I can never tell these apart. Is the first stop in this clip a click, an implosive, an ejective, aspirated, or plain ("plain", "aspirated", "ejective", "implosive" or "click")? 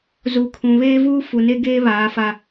aspirated